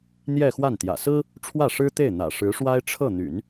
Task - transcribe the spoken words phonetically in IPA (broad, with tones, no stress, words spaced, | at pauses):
n̪jɛ˥˧xwa˥˩n t̪jä̰˨˩sɹ̩˥ | ʈ͡ʂʰwä˥˩ʂɻ̩˥t̪e˥˩ɪ̯ n̪ä̰˨˩ʂɻ̩˧˥ʂwa˥ɪ̯ ʈ͡ʂʰɤ˥˩n̪y̰˨˩˦n